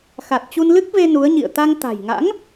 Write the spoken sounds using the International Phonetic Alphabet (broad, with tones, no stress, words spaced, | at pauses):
xa˨˩t̚t͡ɕu˧nlɨ˦˥k̚ve˧ nu˨˦ə̯ ɲḭ˧˨ə̯ t̪a˧ŋt̪a̤˨˩jŋa̰˧˥ŋ